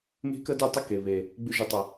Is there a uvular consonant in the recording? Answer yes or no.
no